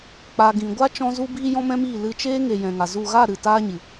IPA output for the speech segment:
k͡p a˨ ɡ ĩ˨ ɡʷ a˦ t͡ʃ ɔ̃˧ z u˧ b iː˧ j ɔ̃˦ m ɛ̃˦ m iː˦˨ l ɨ˧ t͡ʃ eː˦ ŋ e˨ j ɛ̃˨ ŋ a˨ z u˦˨ ɣ a˦˨ ɾ ɨ˨ t aː˦ ɲ ɨ˨

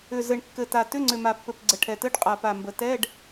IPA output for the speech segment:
ʏ˨˩ z ɘ˨˩ ɳ kː ɘ˨˩ t a˨˩ t ʏ˧˥˧ ŋ͡ǀ ʏ˨˩ m a˨˩ pː ɘ˨˩ p ɡ͡ǀ ə˨˩ ʈʰ ɛ˨˩ t ɘ˧˥˧ ɖ qʼ a˨˩ p a˨˩ m b ə˨˩ t ɛ˧˥˧ ɖ

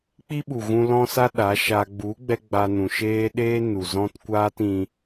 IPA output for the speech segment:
k͡p i˦ ɓ u˨ ɣ ũ˧ l ɔ̃˦ s a˦ ɗ a˨˦ ʃ a˧ ɡ͡b u˨˦ ɡ͡b ɛ˧ ɡ͡b a˧ n ũ˨ ʃ eː˦ ɗ eː˦ n u˨ z ɔ̃˦ t kʷ aː˦ t ĩ˧

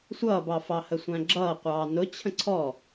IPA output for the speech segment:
sʷ ʌː b ɑ f ɑ h ə sʷ æ̃ ɡ͡ǁ ʌː qʷ ɑː n ʊ t͡ɕʰ ə̃ ǀʰ ɔ

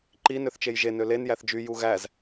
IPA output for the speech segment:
ǃ i n ø θ t͡ʃ e j ʒ e n ø l e n j æ θ d͡ʒ y j u ɣ æ z

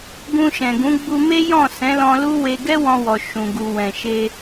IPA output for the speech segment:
ɡ ũ˧ ʃ ɛ̃˨ ɡ ũ˨˦ ɡ͡b u˧ m e˦ j ɔ̃˦˨ s ɛ̃˨˦ l ɔ̃˧ l u˦ w e˧ ɡ ɛ˦ w ɔ̃˧ w ɔ˨ ʃ ũ˨ ɡ u˨ w ɛ̃˨ ʃ e˧

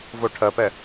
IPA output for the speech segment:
v o ʈʰ ɜ p ɛ

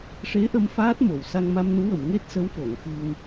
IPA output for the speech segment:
ʂ e˧˥ ʔ ə˧ m f aː˦˥ t̚ m o˨˩˨ w s a˧ ŋ m a˧ m n u˧˥ w ə˨˩˨ m ŋ e˦˥ t̚ s ə˧˥ w f o˨˩˨ ŋ x ɨ˧ ŋ

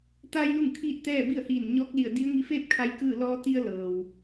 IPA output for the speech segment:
t̪ a˧ j l u˥˨ ŋ kʰ iː˥˨ t̚ t̪ ɛː˥˨ b i˥˨ ə̯ h iː˧˩ n ɲ ɔː˧˥ k̚ l i˧˩ ə̯ d i˧˥ ə̯ ŋ i˧ f eː˥˨ p̚ kʰ a˧˥ j k ɯː˥˨ l ɔː˧ t̪ i˧ ə̯ l ɤː˩ w

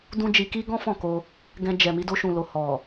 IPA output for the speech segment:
d ũ˦ d͡ʒ i˧ k i˦ ɡ ɔ̃˦ f ɔ̃˦˨ k o˧ | ɡ ɛ̃˧ d͡ʒ ɛ˨ m i˧ d o˧ ʃ ũ˨ l o˨ h ɔ˨

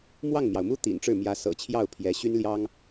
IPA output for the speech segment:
m w ɑ˥˩ ŋ m j ɑ˩ ʊ̯ m u˥ t̪ ḭ˨˩ n ʈ͡ʂ ɻ̩˥˩ m j ä˧˥ s ɤ̰˨˩ t͡ɕʰ j ɑ˥˩ ʊ̯ pʰ j ɛ˧˥ ɕ y˥ n l j ɑ˥ ŋ

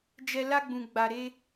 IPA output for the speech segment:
d͡ʒ ɛ˧ l a˧ ɡ͡b ũ˨ ɡ͡b a˨ ɾ e˧

